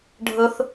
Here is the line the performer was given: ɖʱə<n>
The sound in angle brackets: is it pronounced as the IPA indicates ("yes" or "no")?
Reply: no